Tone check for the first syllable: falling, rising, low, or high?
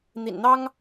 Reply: low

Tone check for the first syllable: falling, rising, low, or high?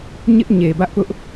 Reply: high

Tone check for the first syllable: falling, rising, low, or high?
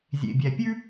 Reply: low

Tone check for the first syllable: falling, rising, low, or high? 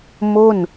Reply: falling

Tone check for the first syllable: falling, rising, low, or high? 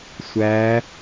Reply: rising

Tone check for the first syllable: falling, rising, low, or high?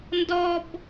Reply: high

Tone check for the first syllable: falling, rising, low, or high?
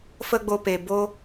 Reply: high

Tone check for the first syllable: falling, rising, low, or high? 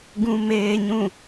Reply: low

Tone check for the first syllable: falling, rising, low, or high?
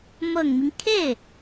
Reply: low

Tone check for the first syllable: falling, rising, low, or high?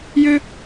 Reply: high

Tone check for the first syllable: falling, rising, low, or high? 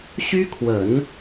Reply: high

